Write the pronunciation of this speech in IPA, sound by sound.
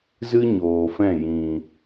z ɨ˦ ɲ oː˨ f ɛ̃˦˨ j ĩ˨

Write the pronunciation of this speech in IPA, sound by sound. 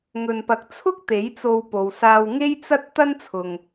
ŋ ɵ˨ n p ɐ˨˥ k̚ t͡sʰ ʊ˥ k̚ t̪ e˨˥ j t͡s o˧ w p o˨ w s aː˧ w ŋ e˥ j t͡s ɐ˥ t̚ t̪ ɐ˥ n t͡sʰ ʊ˨ ŋ

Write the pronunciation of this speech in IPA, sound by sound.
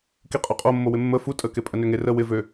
k i qʼ ø qʼ o mː o w ɪ mː ə f u tʼ ə k e pʼ ə n ø ŋ e r ə w ɪ v ø

